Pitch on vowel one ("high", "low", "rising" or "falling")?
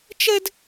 high